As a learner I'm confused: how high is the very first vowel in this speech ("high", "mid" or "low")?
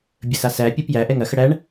mid